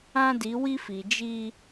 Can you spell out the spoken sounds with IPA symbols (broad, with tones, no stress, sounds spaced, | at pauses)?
ã˦ d i˨˦ w i˦ f i˨ d͡ʒ i˦